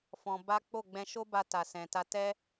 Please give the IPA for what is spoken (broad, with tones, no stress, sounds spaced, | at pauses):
f ɔ̃˧ b a˦ k͡p o˦˨ ɡ͡b ɛ̃˧ ʃ o˦ b a˧ t a˨ s ɛ̃˨ t a˧ t ɛ˦